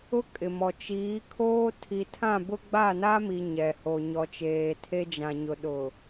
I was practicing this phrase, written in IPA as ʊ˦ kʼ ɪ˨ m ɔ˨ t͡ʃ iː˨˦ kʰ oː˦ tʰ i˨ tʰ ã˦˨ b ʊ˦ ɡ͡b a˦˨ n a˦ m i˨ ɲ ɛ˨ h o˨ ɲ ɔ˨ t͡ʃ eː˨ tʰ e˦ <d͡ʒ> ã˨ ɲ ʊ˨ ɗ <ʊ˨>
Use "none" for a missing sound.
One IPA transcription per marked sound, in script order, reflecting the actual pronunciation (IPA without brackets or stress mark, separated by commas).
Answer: d͡ʒ, ʊ˨